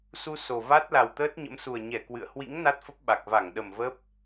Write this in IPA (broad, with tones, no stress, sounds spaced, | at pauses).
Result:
s u˧ s o˨˩ v a˦˥ t̚ l a˨˩ w t̪ əː˦˥ t̚ ɲ ə̰˧˥ m s u˨˩ ə̯ ɲ ɛ˧˩ k w ɨ̰˧˨ ə̯ h w ḭ˧˥ ŋ n a˦˥ t̚ f ə˦˥ p̚ ɓ a˨˩ k̚ v a˧˩ ŋ ɗ ə˨˩ m v ə˦˥ p̚